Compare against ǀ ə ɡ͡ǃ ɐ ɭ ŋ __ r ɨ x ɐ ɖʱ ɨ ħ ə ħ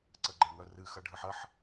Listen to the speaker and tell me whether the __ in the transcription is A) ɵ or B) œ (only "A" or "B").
B